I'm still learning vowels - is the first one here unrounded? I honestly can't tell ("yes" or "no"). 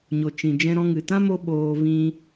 no